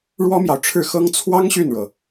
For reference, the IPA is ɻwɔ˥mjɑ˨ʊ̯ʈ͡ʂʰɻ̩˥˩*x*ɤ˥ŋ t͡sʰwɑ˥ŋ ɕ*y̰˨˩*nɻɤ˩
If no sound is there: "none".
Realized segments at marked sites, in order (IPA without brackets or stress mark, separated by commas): x, y˥˩